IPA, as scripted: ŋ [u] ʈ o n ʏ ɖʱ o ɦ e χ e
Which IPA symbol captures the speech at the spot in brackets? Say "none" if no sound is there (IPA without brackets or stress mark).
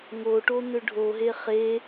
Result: o